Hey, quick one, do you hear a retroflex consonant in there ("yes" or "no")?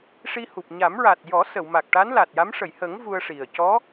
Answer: yes